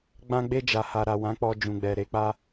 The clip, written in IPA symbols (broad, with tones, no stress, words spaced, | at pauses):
ɡ͡bã˧ɡ͡be˧d͡ʒa˨ ha˨ɾa˨wã˨˦ k͡pɔ˧ d͡ʒũ˨ɡ͡bɛ˨ɾe˨˦k͡pa˦